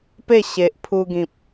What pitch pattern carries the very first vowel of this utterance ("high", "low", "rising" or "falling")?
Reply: falling